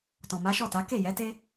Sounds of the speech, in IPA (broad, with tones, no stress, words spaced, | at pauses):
tɔ̃˨ma˨˦ʃɔ˦˨ta˨˦ ke˦˨jɛ˨˦te˦